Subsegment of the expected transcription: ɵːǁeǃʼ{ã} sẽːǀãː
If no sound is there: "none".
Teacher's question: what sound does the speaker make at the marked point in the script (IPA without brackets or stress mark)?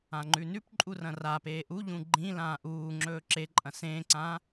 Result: ɐ̃